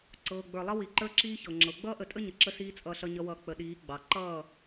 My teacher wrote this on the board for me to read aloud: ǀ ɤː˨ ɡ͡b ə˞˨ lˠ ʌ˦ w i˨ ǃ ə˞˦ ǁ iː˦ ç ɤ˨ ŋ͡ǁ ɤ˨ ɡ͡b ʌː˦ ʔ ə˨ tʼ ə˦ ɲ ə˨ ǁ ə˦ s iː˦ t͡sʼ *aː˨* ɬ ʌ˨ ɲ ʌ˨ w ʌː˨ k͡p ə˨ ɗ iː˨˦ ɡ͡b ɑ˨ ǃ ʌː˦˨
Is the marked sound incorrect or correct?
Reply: incorrect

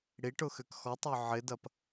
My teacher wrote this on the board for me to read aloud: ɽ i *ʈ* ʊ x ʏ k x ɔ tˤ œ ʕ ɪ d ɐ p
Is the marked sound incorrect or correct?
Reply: correct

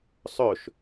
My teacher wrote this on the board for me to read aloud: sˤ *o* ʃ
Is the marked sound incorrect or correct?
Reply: incorrect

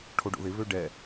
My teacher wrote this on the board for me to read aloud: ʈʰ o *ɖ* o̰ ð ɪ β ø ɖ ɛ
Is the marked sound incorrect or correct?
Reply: correct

